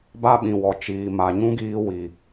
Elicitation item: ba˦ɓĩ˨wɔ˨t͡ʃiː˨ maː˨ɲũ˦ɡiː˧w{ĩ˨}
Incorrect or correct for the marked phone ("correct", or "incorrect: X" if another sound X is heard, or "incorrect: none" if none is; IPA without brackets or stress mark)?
incorrect: i˨